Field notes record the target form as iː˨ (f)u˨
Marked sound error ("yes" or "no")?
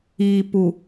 yes